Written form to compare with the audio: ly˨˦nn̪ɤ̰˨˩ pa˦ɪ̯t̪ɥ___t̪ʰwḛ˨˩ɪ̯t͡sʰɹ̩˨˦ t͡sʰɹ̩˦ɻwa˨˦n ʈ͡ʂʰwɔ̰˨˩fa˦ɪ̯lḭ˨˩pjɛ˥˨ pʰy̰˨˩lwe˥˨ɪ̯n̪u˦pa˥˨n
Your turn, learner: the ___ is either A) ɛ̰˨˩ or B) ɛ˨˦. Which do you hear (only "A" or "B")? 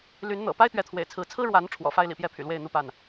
B